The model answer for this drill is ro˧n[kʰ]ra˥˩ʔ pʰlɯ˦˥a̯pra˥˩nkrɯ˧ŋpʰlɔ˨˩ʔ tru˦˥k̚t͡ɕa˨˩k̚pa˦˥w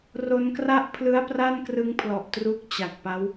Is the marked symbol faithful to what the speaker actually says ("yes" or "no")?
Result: no